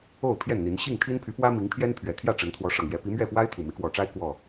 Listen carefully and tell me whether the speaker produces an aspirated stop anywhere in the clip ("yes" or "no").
yes